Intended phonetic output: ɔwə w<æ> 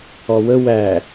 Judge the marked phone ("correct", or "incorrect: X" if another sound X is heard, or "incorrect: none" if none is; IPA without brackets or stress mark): correct